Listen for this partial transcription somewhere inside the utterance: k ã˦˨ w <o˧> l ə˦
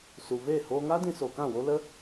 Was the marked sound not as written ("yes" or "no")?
yes